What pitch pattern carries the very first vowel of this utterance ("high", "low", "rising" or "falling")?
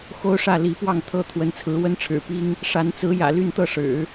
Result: high